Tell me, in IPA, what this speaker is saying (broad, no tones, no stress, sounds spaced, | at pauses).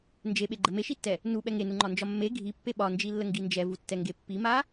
n d͡ʒ e ɓ e ɡ͡ǃ ə m e ʃ i tː ɛ | n u ɓ ɛ ŋ e n u ŋ͡ǃ ɒ n d͡ʒ ɒ mː e ɡʱ i pː e ɓ ɒ n d͡ʒ i lː ə ŋ ɡ i n d͡ʒ ɛ v u tː ɛ ŋ ɡ e pː i m a